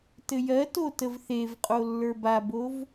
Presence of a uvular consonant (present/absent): present